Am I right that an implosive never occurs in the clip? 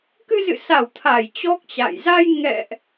yes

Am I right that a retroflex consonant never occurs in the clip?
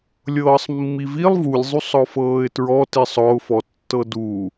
yes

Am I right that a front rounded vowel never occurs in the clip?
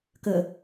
yes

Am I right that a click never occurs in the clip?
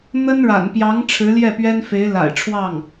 yes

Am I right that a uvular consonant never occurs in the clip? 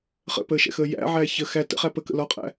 no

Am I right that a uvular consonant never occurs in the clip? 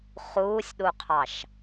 no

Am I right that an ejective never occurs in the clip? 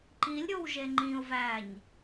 yes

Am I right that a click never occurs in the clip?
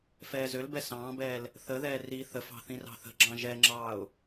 no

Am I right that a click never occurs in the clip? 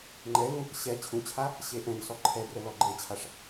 no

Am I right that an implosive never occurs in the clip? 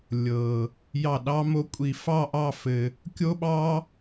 no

